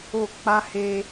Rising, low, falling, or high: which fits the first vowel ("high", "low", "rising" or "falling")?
falling